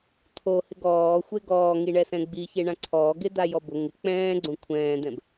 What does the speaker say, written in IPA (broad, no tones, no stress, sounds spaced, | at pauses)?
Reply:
t̪ʰ o h ɪ ɡ ɔː xʷ e ɡ ɔː ŋ i ɳ ɛ s ɛ̃ ɡ͡b i ç e ɳ ã ǀʰ ɔː ɡ e d̪ a j ɔ b ʊ ŋ ɪ k͡p ɛ̃ː ɡ͡ǀ õ kʷʰ ɛ̃ː d̪ ɛ̃ b